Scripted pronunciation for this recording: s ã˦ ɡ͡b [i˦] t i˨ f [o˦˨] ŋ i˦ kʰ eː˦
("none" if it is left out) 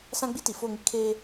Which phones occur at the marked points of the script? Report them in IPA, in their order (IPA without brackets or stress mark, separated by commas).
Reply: i˦, o˦˨